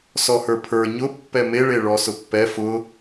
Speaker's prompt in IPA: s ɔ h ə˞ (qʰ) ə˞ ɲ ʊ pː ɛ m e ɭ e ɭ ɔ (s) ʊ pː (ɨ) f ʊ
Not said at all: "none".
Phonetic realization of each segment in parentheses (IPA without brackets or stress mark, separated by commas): pʰ, s, ɛ